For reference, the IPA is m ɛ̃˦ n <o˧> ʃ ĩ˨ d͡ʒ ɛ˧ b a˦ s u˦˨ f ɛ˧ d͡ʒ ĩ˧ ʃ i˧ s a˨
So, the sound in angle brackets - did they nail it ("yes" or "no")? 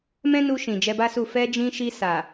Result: no